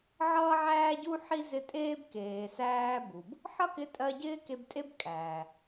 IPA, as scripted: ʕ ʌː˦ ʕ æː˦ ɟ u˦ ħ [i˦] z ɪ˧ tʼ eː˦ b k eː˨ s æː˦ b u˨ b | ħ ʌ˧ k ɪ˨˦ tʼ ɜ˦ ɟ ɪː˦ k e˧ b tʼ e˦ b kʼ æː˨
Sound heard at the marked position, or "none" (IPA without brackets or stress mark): i˦